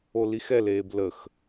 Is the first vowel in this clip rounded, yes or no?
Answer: yes